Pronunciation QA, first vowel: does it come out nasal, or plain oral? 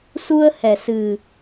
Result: oral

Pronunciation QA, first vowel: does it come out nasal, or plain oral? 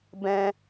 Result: nasal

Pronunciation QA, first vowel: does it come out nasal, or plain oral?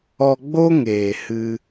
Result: oral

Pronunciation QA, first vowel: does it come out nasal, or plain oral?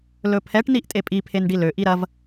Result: oral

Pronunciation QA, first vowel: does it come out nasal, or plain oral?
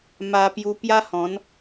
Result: oral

